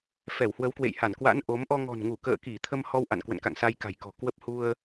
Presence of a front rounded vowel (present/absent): absent